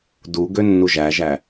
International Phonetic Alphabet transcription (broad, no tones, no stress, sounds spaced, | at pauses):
d u ɡ ø nː u ʒ æ ʒ æ